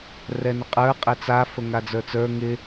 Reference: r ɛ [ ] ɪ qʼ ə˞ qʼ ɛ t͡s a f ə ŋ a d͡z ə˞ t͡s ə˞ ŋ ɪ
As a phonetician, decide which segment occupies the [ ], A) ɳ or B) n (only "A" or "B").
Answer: B